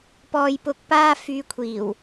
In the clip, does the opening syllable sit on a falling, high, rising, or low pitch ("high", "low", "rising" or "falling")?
low